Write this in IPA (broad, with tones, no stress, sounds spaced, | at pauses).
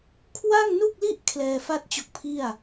kʰ w a˥˩ ŋ n u˥˩ k̚ l i˥˩ ʔ kʰ l ɛː˧ f a˥˩ t̚ t͡ɕ o˦˥ k̚ pʰ i˥˩ a̯